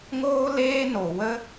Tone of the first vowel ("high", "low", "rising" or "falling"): high